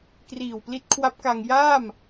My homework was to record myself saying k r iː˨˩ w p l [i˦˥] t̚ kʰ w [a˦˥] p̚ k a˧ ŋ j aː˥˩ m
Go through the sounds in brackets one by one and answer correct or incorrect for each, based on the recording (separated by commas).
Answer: correct, correct